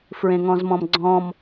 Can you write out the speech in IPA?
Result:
fɹẽŋɔ̃zmɔ̃mɡ͡ǀɔ̃m

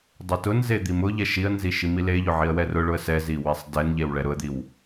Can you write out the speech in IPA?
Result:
dˤetʊnze d̪imʊʎɛ ʃiə̯nzi ʃimileʎʊ ʕiə̯wɛrʊɭʊə̯ sɛzi wesˤdɛnʎew ɭɛɾʊə̯d̪iw

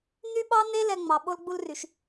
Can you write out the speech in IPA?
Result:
n̪y˥ɓɑ˥n̪e˥ lɛ˧ŋ͡mɑ˩ɓo˥l ɡ͡bu˥lry˩ʃ

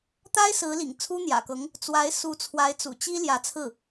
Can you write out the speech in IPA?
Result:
t̪a˥ɪ̯sɹ̩˧˥ lḭ˨˩ŋt͡sʰu˥n̪jä̰˨˩kɤ˧˥ŋ | t͡swa˧˥ɪ̯ su˧˥t͡sʰwa˧˥ɪ̯ t͡sṵ˨˩t͡ɕi˥ ljä˧˥t͡sʰɹ̩˥˩

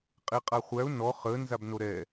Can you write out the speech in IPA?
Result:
qʼeqʼaχʷæʊ̯ nɔ χə nzabnoɾɛ

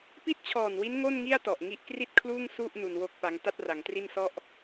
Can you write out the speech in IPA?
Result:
pi˥˩t̚t͡ɕʰɔː˨˩nwi˦˥n ŋo˥˩nŋi˥˩a̯tɔ˨˩ʔ ŋi˦˥ʔkri˥˩t̚kʰluː˥˩ŋ su˥˩ʔ nu˧nwo˥˩k̚pa˦˥ŋ ta˥˩t̚ra˩˦ŋtri˥˩n sɔ˥˩ʔ

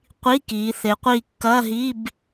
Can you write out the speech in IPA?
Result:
qʷi˧˥˧kiː˩˧ θe˩˧qʷiː˧˩kːɐː˧˥˧ ɦi˧˥˧b

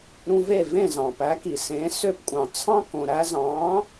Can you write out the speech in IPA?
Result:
ɾũ˧ve˥˩vẽ˥˩ zɑ̃˩pæ˩˥ki˩sẽ˩˥ sø˧pkʷʼɑ̃˩ t͡sʰɑ̃˥kõ˩ ɾæ˧zɑ̃˩˥

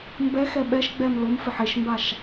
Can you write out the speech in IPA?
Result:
mbɛxɛ ɓɛʃɡ͡bɛm lomfɪħ eʃmbaʃ

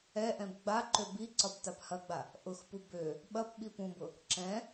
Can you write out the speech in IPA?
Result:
ɛʔɛ̃b ɡ͡baǃø bi ǀɒbtaphɐɡ͡ba | ʔʊxpu bø | ɓɐp ɓipũbʊ | ǁɛ̃

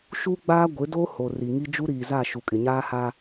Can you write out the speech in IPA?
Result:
ʃu˦ɡ͡baː˦ɡʷɪ˨˦do˦ ho˨ri˨ŋi˦ d͡ʒu˦ɾiː˨za˦˨ ʃu˨kʼɪ˨ɲaː˦ha˦

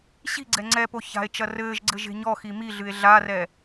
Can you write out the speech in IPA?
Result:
ɕi̤ɡ͡ǀɛ ŋ͡ǀɛpo ça̤e̯t͡ʃɐ rɘːʒɡ͡ǀɘ ʒe̤ɲɔxi miɮɨe̯ ɮarɛ

